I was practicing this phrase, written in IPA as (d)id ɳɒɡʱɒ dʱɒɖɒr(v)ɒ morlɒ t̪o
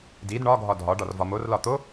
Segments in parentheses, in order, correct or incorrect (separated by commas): correct, correct